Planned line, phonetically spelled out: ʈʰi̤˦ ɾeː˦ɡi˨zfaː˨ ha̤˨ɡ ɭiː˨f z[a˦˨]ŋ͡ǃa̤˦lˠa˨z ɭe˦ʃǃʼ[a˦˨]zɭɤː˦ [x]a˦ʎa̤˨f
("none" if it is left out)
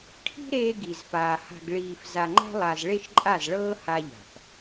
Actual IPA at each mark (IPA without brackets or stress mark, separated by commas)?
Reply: a˨, a˦˨, h